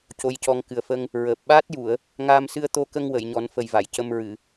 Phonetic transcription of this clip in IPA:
co˧jcɔ˧ŋ kɨ˨˩ə̯fə˧ŋ | ɹəː˨˩p̚ ɓaː˦˥t̚ju˨˩˨ə̯ | ŋaː˧msɨ˧ə̯t̪o˧kə˧ŋ wə˨˩˨jɲɔ˨˩˦nfə˨˩j va˨˩˨jcə˧mɹɨ˨˩˨

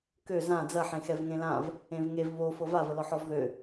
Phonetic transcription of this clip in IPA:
kø zã d͡zɐħẽxɛv ŋẽlãv | ẽvŋev βo fɤvavəlɔħ ɔvðø

